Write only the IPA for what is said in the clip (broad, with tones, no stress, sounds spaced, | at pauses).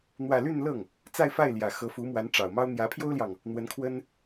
n̪ w ä˥˧ l y˥˧ n l ɤ˥˩ ŋ | t͡s a˥˧ ɪ̯ f a˥˩ ɪ̯ l j ä˨˩ x ɤ˧˥ f u˧˥ m w a˧˥ n ʈ͡ʂ ɑ˨˩ ʊ̯ m ɑ˥ ʊ̯ n̪ j ä˧˥ pʰ j o˥ ʊ̯ l j ɑ˨ ŋ | n̪ w ə˧˥ n kʰ w ə˥ n